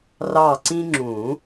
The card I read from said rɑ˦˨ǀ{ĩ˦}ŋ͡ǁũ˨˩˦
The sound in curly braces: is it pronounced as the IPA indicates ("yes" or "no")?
yes